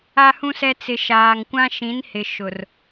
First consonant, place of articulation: glottal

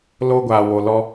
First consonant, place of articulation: alveolar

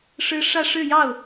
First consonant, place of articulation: retroflex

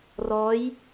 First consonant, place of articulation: alveolar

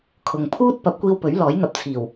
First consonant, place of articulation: velar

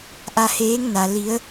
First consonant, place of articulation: glottal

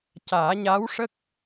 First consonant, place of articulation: palatal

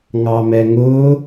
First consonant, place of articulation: velar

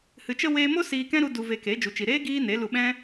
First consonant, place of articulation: glottal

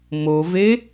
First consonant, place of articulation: labial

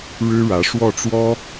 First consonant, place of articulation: retroflex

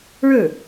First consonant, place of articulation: retroflex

